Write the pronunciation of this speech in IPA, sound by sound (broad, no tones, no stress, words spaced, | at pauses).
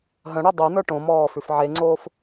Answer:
ɦə̃ɽo dˤonə˞ ʈõmɔː fʉfʕeŋ͡ǀoːf